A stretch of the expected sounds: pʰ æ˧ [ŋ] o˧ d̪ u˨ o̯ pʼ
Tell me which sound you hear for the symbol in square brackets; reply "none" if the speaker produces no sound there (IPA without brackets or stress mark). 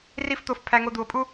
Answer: ŋ